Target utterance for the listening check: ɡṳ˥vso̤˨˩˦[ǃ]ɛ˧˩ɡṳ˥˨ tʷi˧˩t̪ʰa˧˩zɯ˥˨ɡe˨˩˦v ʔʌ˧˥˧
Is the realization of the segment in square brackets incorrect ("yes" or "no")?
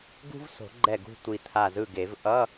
yes